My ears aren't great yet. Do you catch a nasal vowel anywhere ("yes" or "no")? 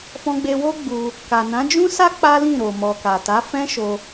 yes